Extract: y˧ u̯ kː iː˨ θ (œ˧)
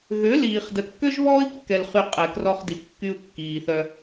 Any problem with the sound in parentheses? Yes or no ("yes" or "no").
no